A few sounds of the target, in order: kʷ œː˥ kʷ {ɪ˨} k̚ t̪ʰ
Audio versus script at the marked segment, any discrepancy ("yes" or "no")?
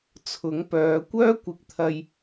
no